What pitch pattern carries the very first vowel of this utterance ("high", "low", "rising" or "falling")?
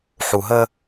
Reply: low